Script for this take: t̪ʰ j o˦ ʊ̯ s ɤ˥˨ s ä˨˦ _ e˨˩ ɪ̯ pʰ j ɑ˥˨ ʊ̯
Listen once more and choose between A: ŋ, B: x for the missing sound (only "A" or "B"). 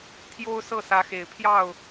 B